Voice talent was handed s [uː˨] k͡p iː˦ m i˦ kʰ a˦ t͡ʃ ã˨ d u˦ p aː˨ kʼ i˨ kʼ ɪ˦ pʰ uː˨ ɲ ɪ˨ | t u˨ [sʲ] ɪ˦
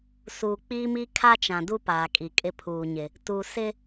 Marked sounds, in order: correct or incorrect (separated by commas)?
correct, incorrect